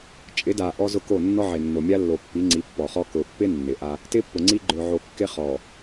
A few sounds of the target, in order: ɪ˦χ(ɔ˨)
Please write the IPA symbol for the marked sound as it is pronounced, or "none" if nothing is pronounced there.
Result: ɔ˨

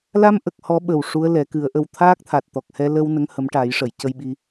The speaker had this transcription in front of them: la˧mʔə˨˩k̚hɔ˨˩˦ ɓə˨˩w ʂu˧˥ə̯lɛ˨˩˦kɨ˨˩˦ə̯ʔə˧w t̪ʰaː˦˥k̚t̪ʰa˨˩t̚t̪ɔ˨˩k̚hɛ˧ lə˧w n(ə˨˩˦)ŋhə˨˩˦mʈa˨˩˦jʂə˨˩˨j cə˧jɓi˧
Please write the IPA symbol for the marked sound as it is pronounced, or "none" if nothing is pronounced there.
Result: ə˧˥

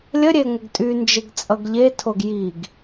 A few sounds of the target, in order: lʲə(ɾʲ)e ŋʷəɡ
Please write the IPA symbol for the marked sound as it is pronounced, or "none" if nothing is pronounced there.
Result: ɾʲ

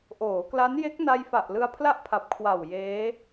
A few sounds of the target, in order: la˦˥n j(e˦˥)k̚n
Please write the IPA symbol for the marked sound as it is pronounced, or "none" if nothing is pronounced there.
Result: e˦˥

